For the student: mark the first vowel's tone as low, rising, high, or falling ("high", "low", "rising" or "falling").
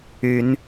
rising